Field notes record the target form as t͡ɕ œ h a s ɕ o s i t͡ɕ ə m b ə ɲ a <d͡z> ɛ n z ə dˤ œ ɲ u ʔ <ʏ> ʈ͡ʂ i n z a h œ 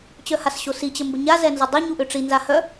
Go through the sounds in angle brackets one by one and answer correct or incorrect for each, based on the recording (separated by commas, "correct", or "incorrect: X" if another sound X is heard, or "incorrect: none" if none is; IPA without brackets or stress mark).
incorrect: z, correct